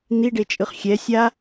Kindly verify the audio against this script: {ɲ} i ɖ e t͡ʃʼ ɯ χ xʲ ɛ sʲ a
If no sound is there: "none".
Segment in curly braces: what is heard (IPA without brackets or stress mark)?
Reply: n̪